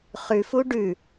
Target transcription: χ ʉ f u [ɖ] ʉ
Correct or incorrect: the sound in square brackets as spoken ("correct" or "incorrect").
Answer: correct